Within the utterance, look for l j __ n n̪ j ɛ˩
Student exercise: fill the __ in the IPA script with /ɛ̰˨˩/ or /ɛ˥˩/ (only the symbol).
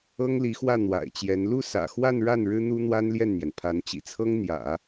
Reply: ɛ˥˩